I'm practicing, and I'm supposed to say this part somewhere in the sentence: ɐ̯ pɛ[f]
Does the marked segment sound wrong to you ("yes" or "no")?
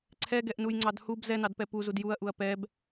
yes